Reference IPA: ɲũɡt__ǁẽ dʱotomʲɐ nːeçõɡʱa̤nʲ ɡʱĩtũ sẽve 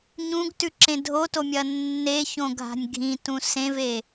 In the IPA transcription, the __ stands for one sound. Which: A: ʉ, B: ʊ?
A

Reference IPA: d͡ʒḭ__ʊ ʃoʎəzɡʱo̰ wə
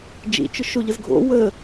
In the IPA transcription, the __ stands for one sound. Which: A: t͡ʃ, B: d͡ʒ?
A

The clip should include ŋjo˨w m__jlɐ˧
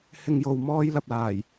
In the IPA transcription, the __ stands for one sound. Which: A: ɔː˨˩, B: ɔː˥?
B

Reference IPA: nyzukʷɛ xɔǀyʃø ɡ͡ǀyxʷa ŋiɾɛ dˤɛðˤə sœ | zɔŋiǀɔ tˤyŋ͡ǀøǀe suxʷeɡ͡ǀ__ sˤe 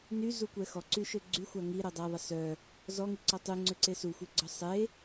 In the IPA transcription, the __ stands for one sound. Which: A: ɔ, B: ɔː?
A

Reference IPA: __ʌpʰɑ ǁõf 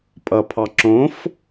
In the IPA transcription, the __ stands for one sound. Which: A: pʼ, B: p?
A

